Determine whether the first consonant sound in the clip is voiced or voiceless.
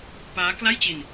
voiceless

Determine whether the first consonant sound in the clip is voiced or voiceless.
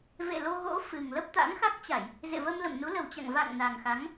voiced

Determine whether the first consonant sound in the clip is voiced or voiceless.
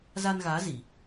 voiced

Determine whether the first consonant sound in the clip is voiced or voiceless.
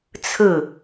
voiceless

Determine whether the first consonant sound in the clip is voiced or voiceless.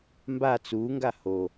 voiced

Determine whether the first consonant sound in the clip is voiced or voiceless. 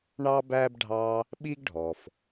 voiced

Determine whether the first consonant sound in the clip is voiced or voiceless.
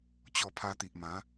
voiceless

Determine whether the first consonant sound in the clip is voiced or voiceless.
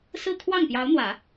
voiceless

